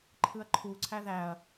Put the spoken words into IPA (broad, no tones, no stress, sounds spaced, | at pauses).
ǃʰ ɯ ɐ̯ ǃʰ u ǀʰ æ ð æ ɐ̯